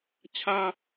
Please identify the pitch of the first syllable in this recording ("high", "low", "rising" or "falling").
high